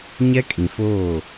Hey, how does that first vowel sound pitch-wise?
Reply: high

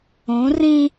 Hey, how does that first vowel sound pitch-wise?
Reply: rising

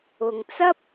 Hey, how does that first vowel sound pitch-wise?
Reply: low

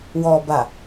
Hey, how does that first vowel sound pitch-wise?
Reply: low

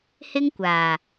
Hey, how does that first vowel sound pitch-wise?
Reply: high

